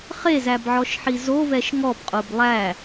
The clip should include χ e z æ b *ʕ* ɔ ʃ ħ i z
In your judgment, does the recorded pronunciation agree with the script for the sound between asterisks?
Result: yes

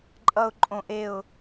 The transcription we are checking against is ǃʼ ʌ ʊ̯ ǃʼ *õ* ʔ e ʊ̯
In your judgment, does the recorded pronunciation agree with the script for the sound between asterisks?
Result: yes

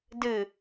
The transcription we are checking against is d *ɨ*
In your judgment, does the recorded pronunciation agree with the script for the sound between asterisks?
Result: yes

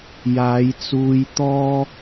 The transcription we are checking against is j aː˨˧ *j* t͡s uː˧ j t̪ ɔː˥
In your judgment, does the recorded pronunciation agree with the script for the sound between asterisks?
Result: yes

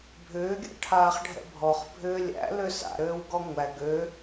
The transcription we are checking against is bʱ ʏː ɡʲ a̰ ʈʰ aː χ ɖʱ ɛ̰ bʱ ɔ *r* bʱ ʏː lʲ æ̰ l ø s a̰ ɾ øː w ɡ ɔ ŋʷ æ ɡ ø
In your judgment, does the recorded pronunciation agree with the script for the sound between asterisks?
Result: no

